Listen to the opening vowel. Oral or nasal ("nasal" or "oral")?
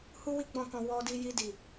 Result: oral